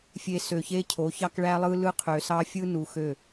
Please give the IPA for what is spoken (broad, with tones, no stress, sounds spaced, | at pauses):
fʲ e˨ s ø˨ ç e˦ cʰ o˨˦ ç ɑ˦ k ɭ æ˦ lˠ ɯ˦ l ɯ˦ qʰ ø˨ s ɑ˦ fʲ ɯ˦ n u˨ x ø˦˨